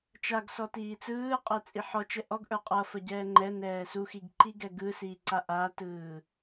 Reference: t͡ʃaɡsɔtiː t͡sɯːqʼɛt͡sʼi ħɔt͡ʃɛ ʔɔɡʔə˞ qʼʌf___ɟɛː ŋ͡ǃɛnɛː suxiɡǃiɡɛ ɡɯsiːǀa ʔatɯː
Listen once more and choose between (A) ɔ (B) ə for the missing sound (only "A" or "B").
B